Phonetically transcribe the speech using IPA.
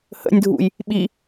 h ə̰ nʲ dʱ ṵ j | ɓ i

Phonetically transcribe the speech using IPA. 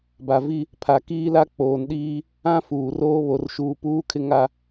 b a˨ v i˦ | pʰ a˨ k iː˦ l a˦ k͡p oː˨ n ɗ iː˦ | ã˦ f uː˨ r oː˦ β o˨ r ʃ uː˨ p uː˦ kʰ ɪ˦ ŋ a˦

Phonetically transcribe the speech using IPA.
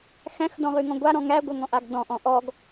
x æ̃ x d ɔ̃ ʁ ʉ ŋ ɔ̃ ɡʷ a ɾ ɔ̃ ŋ æ ɡʷ ʌ ŋ ɔ̃ ʔ a ɡ d ɔ̃ ʔ ɔ̃ ʔ ɔ ɡ

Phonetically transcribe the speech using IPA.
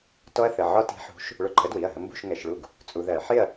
t ɔ˦˥ ɐ̯ θ ə˩˧˩ ʕ ɒ˦˥ t i̤˨˥ ħ ṳ˨˥ ʃ | ɭ ʊ˧ ǃʰ ə˨˥ d w i˩˧˩ ɐ̯ ɦ ə˧ m b ṳ˥˨ ʃ ŋ ɛ˧˩˧ ʃ ɭ u˥˨ ɡ | t͡sʼ u˧ ð ɜ˧˩˧ ħ ɪ˥˨ ɐ̯

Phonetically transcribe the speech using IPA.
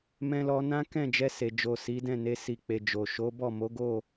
m ɛ̃˧ l ɔ˧ n ã˦ k ɛ̃˦˨ d͡ʒ ɛ˧ s e˨ d͡ʒ o˨ s i˨˦ d ɛ̃˦˨ n e˧ s i˨ k͡p e˨ d͡ʒ o˨ ʃ o˨˦ b ɔ˦˨ m o˨˦ ɡ o˦˨

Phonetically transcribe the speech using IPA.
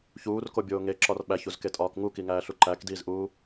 ç uː r k o bʲ oː ŋ e ǁ ɒ r ɓ æ ç u z k e tʼ ɒː k ŋ u k i ŋ æː ɬ u ǃ æ k d iː z ʔ uː

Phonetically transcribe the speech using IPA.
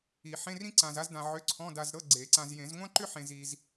i˨˩˦ ħ ẽ˧˥˧ r ĩ˥ ǀ ã˧ z a˥ z d ã˧ ʕ ʏ˧˥˧ ǀʰ ɔ̃˧˥˧ d a˧ z ɾ ɤ˧˥˧ ɡ͡ǀ e˨˩˦ ǀ ã˧ z j ẽ˨˩˦ z ŋʷ ã˥ ǃ ʏ˥ ħ ẽ˧ z i˧ z

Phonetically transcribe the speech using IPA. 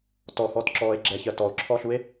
t ɔ x ɔ t ǁ ɔː e̯ ɡ͡ǁ ɛ ç ɜ t ɔ o̯ ǁʰ ɔ ɬ u e̯

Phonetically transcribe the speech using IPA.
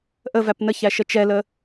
ʔ ə v æ p n ə ç æ ʃ ə t͡ʃ ɛ l ə

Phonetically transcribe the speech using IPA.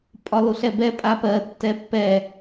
pʼ ɒ l o ɬ ɛ b ɛ pʼ a p ɜ tː ɛ pː ɛ

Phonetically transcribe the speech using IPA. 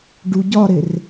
ɖ u ɟ ɒ ɾ e r

